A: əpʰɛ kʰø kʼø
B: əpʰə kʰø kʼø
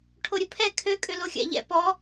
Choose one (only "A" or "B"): A